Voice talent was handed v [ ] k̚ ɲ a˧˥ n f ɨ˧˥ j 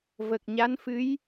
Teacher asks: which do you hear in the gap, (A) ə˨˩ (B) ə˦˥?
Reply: A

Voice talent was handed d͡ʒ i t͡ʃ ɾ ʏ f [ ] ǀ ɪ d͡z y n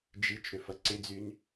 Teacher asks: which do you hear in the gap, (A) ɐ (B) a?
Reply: A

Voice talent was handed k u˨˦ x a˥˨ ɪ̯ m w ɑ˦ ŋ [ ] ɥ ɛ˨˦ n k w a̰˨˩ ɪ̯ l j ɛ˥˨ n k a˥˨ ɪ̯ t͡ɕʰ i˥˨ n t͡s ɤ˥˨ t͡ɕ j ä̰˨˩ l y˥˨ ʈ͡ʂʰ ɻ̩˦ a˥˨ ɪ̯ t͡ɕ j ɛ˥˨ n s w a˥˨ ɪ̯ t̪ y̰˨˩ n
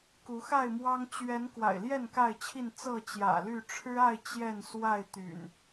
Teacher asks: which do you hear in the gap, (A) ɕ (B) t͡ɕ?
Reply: B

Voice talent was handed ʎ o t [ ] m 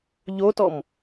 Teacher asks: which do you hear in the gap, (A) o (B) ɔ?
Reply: B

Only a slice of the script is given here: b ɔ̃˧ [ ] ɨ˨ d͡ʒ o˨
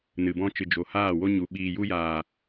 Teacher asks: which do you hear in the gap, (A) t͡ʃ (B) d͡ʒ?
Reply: A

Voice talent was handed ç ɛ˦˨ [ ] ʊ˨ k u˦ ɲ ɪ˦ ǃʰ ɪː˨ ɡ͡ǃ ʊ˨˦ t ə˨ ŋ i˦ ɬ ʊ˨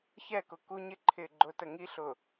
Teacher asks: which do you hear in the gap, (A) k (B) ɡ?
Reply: A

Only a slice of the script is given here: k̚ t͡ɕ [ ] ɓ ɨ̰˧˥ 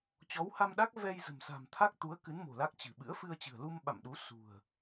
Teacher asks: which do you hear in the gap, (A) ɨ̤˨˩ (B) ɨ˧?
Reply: A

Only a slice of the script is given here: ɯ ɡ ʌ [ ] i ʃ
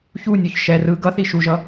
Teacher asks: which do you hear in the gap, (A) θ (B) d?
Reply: A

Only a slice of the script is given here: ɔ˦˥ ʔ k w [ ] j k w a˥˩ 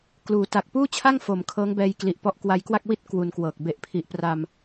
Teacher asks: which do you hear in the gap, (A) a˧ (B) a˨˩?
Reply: A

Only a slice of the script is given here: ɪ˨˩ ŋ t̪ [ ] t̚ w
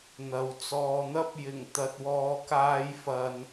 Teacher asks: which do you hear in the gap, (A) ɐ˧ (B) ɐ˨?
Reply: A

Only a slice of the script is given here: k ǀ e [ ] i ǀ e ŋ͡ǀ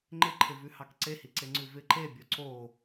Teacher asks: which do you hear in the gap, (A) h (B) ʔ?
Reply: A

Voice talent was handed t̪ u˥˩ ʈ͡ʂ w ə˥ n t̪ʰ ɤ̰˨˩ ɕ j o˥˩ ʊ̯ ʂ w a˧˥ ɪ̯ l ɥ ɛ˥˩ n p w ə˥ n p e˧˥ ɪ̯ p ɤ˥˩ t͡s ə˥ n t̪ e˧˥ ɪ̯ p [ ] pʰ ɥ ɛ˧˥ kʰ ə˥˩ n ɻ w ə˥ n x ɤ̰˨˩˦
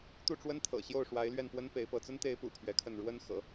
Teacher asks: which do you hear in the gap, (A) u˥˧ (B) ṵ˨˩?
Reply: B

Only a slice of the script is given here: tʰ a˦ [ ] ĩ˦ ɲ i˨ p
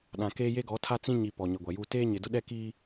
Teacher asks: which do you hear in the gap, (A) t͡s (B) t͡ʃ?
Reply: A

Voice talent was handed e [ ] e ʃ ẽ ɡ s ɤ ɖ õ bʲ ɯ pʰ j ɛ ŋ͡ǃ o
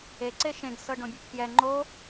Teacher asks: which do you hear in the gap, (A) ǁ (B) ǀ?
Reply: B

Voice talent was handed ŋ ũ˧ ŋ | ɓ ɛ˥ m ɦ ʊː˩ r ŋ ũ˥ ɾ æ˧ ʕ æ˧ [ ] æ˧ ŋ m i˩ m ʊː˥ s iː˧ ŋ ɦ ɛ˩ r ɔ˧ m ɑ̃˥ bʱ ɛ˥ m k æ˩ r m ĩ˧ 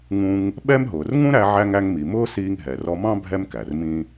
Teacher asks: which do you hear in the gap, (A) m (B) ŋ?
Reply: B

